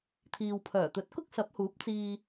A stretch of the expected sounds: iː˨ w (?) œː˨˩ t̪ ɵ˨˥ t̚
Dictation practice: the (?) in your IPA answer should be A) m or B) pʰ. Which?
B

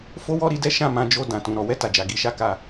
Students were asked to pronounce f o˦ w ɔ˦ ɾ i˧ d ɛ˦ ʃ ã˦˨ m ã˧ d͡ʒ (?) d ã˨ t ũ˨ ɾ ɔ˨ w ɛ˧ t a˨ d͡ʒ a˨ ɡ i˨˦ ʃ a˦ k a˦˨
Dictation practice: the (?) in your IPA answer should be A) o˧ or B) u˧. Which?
A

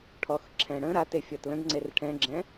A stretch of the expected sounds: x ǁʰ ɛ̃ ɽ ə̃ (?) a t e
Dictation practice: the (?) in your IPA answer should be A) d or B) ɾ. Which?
B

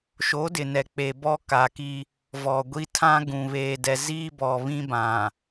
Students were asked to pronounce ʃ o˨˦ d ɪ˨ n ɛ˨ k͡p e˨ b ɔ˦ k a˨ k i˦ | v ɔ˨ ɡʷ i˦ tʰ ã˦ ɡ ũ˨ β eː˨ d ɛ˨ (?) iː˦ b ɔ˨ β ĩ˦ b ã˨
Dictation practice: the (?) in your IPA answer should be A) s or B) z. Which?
B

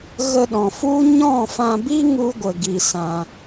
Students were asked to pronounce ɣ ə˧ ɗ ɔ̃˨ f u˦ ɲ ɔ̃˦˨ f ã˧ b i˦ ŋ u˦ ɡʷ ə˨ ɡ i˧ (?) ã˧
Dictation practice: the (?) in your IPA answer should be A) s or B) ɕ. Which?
A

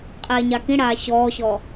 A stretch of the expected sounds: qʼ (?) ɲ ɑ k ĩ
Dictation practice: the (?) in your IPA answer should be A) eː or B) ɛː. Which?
B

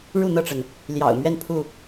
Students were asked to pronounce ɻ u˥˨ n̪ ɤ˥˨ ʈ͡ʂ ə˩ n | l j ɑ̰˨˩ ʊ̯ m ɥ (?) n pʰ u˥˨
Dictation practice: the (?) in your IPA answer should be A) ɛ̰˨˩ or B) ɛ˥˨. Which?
B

